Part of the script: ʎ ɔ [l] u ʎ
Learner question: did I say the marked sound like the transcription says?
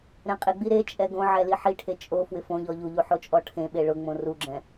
no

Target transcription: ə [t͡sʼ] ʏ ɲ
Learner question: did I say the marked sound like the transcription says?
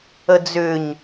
no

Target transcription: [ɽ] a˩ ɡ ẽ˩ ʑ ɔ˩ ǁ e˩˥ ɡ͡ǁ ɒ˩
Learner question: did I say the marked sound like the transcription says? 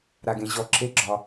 no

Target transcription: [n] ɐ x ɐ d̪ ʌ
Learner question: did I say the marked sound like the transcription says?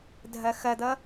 no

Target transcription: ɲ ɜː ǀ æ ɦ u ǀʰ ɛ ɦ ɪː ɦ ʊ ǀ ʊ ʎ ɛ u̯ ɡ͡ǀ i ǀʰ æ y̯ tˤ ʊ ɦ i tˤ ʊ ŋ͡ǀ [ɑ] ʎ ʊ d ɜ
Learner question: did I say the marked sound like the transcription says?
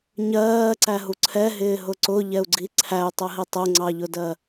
yes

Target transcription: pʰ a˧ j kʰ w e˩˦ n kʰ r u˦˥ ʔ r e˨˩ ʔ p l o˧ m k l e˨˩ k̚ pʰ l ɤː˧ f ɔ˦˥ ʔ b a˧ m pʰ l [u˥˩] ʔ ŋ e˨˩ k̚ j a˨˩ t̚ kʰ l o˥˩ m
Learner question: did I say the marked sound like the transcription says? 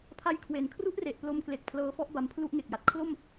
yes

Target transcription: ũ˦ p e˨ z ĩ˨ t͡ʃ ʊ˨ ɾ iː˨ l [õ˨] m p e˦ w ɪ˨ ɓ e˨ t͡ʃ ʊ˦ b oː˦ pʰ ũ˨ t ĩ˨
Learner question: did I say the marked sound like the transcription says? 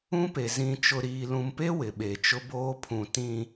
no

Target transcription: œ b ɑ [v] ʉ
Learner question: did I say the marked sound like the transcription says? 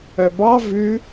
yes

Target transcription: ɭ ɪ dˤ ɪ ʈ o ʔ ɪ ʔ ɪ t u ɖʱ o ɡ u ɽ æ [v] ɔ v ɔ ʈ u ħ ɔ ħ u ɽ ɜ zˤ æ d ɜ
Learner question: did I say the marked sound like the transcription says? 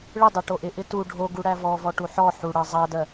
yes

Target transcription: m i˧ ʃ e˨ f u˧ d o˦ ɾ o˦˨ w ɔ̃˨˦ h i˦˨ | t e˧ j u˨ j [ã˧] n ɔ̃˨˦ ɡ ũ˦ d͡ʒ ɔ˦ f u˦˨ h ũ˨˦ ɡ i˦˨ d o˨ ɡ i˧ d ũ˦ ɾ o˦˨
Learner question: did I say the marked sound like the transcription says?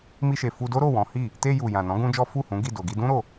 no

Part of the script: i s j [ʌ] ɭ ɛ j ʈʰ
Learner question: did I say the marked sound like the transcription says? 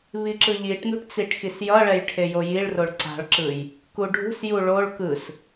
yes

